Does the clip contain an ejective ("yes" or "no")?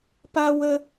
no